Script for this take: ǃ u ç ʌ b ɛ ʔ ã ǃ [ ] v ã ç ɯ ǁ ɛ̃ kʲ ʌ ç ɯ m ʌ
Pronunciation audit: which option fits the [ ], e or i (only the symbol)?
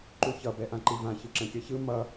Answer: i